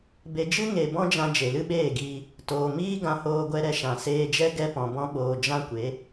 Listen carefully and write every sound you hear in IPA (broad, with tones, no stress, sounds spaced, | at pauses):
b e˨ d͡ʒ ɨ˦ ŋ e˨ b ɔ̃˦ d͡ʒ ã˧ d͡ʒ e˨ l ɨ˦ ɓ eː˦˨ ɡ iː˧ | t oː˨ m iː˦ ɡ ã˧ h oː˧ ɡʷ ɛ˧ ɾ ɛ˧ ʃ ã˨ s eː˧ d͡ʒ ɛ˦ ɡ ɛ˧ p ɔ̃˨ b ɔ̃˧ ɓ oː˨ d͡ʒ ã˦ kʷ e˨˦